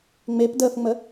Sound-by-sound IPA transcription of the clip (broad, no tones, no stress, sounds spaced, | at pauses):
ŋ͡m e p d əː f ŋ͡m ə